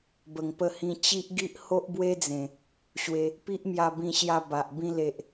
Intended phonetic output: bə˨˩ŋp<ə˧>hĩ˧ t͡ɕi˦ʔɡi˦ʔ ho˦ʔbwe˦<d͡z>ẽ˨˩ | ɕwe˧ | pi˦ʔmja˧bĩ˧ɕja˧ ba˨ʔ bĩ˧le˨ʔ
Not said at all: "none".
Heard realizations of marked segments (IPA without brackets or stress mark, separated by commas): ə˧, d͡z